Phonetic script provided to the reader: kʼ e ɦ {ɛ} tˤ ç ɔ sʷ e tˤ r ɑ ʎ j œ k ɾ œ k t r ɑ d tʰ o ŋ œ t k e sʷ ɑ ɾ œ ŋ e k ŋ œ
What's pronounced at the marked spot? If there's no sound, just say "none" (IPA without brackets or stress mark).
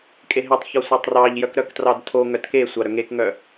e